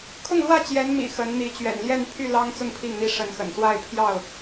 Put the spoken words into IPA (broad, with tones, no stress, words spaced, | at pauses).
kʰʊ˥˨ŋlwä˥˨ t͡ɕjɛ˨˦nmḭ˨˩ xə˨˦nn̪i˨˦ t͡ɕɥɛ̰˨˩nljɛ˥˨npʰy˥˨lɑ˦ŋ t͡sʊ˥˨ŋpʰi˥˨ŋn̪i˦ ʂə˨˦nxə̰˨˩nswa˥˨ɪ̯ pʰjɑ˥˨ʊ̯